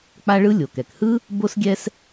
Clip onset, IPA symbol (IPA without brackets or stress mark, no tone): k͡p